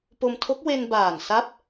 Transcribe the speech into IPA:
p o˧ m tʰ o˦˥ k̚ w e˧ n b aː˨˩ n s a˦˥ p̚

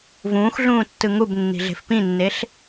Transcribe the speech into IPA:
v ũː x ɮ ũː tː ɯ ŋ u b nː i̤ ɮ e̤ f p ĩ nː e ɬ

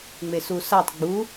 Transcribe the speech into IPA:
ŋ͡m e s u s a tˤ ɡ͡b u

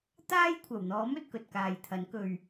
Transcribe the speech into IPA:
t̪ aː˥ j kʷʰ ɐ˨˩ w n̪ ɔː˨˥ m ɵ˨ t̚ k ɵ˨ t̚ k aː˨ j t̪ʰ ɐ˨˥ n k ɵ˧ ɥ

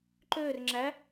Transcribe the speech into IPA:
ǃ øː r ŋ͡ǁ æ

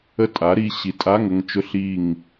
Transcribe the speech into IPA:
ə˦˨ tʼ a˨˥ ɾ i˩˧˩ ɕ i˨˥ tʼ a˧˥˧ ŋ ə˦˨ ŋ t͡ʃ ʊ˧˥˧ ɬ i˦˨ ŋ

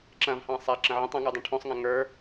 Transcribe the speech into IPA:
ǁ ɐ̃ v h ɑ̃ sˤ a ǁ ə̃ ʕ ə̃ tˤ ɐ̃ ŋ ə˞ dˤ ĩ ʈʰ õ sˤ ŋ ɐ̃ ŋ ə˞

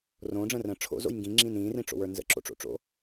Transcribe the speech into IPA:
r õː ɖ͡ʐ ə̃ː r ə̃ː ʈ͡ʂʰ o̰ z o̰ j ŋ ɡ ĩ ŋ͡ǁ ĩː n ĩː r ĩ ʈ͡ʂ o̰ w ə˞ n z ə̰ ǁ o̰ ʈ͡ʂ o̰ ʈ͡ʂ o̰

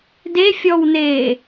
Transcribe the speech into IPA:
d e fʲ ɔ w n eː

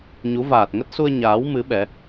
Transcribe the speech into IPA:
ɲ u˨˦ v aː˨˩ t̚ ŋ ə˦˥ t̚ s u˧ ə̯ ɲ aː˨˦ w m ɨ˨˦ ɓ ɛ˨˦

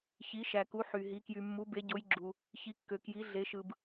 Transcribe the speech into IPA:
ç i˩˧ ʃ æ˩ k u˩˧ ħ y˩ ɦ i˩˧ k j y˩ mː u˩˧ b e˩˧ ɟ o˩˧ j ɡ͡ǁ u˩ | ç i˩˧ kː ø˩ k j i˩˧ ɮ e˩˧ ʃ ɯ˩ b

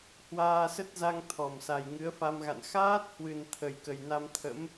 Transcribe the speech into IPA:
h w aː˧ s ə˦˥ t̚ z a˧ ŋ t̪ʰ ɔ˧˩ m s a˨˩ j ŋ ɨ˨˦ ə̯ f a˧ m ɣ a̰˧˨ n x aː˦˥ t̚ h w ɨ˨˩ n t̪ʰ ə˨˩ j k ə˨˩ j n a˧ m t̪ʰ ə̰˧˥ m

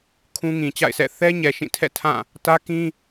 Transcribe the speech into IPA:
kʰ ũ˦ ŋ ĩ˨ t͡ɕ a̰˦˨ ɪ̯ s ɛ̰˦˨ θ ɛ˦ ɲ ɛ˨ ʃ ĩ˦˨ tʰ ɛ̰˦˨ tʰ ã˦˨ | t ä˦ k ĩ˦

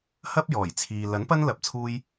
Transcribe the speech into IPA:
h ɐ˥ p̚ j ɔː˨˩ j t͡sʰ iː˨ l ɐ˨˥ n p ɐ˥ n l ɐ˧ p̚ t͡sʰ uː˥ j

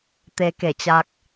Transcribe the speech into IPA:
t̪ e˧ k e˧˩ t͡ɕ a˧ k̚

